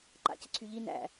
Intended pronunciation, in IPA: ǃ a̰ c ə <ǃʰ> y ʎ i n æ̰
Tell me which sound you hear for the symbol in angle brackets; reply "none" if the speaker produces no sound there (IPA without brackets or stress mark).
ǀʰ